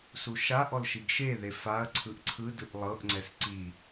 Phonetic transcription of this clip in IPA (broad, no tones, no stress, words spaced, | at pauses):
suʃaʔɔl ʃiɡʃeðe faɐ̯ ǀʰɯʔǀʰɯdɯʔ lˠɤʔŋ͡ǀɛs ǀi